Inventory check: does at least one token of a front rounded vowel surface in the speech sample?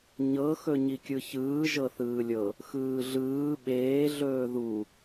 no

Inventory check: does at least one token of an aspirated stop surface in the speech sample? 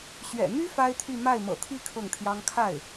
yes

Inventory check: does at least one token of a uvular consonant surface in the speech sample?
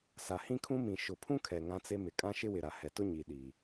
no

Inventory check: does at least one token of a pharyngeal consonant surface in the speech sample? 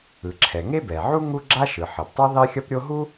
yes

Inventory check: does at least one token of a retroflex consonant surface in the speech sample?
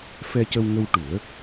yes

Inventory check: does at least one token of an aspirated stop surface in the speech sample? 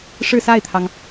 yes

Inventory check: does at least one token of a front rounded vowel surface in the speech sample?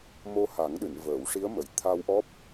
no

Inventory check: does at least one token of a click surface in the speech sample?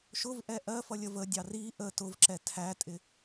yes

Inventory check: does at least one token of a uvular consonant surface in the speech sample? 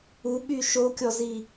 no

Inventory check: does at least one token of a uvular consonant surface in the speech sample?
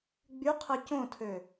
yes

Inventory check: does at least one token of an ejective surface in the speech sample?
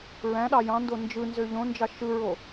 no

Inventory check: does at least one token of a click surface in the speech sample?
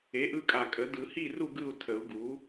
no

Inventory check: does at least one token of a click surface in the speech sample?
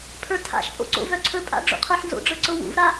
yes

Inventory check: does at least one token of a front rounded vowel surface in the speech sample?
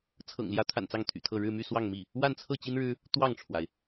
yes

